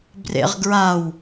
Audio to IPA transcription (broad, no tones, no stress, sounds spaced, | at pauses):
b r ḛ ʁ ɡ ɹ a w